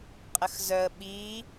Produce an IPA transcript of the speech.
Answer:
qʼ ə x z œ ə̯ ɓ i

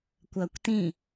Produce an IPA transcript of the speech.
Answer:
kʷ ɐː kʷ t ĩ

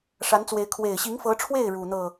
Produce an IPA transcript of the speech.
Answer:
ʂ a˧˥ n t͡s w e˧˥ ɪ̯ kʰ w e˨˩ ɪ̯ ɕ i˧˥ ŋ f ɤ˧˥ ʈ͡ʂʰ w e˥˩ ɪ̯ ɻ u˨˩ n̪ ɤ˥˩

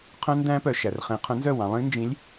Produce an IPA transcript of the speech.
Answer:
qʰ œ̃˦˥ n d æ̃˦˥ p œ˩ ʃ æ˩ r χ ẽ˩˧ qʰ œ̃˨˥ n z œ˥˩ w ɑ̃˩˧ lˠ ĩ˦˥ n d͡ʒ ĩ˨˥ lʲ

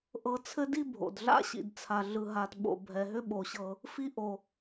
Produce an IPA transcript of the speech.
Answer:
ʔ ɤ˥ t͡sʰ ɘ˥ d i˥ bʱ o̰˨ d ɮ a̰˥ ɕ ḭ˨ d t͡sʰ a˨ ɮ ɯ˨ ɦ a˨ t ɓ o̰˨ bʱ ɛ˨ ɦ ʏ˥ ɓ o˨ ɕ ɤ˨ | f i˥ ʔ o˨

